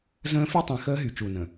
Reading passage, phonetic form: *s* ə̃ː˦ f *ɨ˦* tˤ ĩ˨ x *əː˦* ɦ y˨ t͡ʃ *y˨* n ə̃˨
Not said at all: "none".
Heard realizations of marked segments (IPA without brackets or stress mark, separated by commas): z, y˦, əː˦, u˨